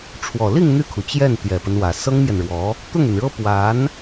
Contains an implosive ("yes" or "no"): no